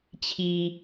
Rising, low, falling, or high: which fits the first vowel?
low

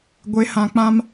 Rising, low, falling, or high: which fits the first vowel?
rising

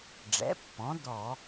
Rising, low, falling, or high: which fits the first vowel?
rising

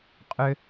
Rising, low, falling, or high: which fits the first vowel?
low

